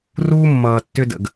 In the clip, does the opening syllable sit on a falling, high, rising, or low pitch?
high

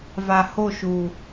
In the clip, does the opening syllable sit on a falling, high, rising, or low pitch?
low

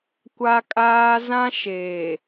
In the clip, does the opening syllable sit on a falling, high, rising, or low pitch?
high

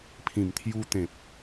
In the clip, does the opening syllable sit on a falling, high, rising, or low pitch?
low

